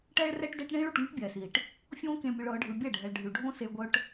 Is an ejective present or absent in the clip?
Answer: absent